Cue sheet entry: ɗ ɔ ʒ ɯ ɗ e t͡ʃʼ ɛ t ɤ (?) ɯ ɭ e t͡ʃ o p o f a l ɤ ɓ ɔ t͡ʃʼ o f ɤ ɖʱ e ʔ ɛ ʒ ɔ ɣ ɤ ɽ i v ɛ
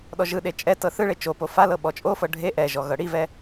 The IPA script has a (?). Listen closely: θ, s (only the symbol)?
θ